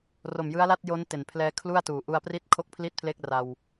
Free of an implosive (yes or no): yes